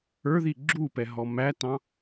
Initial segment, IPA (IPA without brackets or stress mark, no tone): ə˞